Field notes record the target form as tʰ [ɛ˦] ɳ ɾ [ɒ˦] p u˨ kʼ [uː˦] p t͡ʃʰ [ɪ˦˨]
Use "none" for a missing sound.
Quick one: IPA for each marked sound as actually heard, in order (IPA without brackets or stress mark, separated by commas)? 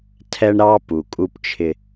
ɛ˦, ɑ˦, u˦, ɪ˦